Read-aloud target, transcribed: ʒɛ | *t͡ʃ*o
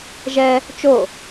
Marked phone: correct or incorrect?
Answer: correct